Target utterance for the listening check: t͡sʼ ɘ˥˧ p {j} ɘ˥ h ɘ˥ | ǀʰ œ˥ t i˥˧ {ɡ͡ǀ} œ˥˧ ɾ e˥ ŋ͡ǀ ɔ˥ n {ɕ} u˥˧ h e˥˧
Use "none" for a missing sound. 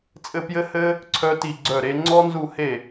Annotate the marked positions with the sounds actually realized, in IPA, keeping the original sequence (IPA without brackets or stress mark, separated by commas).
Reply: j, ɡ͡ǀ, z